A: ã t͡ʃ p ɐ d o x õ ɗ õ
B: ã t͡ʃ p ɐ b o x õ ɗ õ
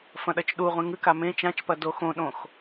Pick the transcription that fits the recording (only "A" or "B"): A